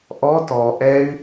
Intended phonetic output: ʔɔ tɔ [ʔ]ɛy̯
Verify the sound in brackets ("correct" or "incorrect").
correct